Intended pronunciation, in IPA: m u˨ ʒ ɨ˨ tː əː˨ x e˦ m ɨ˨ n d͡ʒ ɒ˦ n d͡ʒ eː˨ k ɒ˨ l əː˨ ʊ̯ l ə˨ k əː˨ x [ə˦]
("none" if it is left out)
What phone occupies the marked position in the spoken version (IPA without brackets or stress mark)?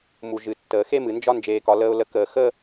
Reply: ə˦